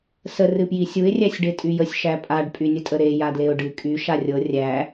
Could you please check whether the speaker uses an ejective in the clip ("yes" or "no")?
yes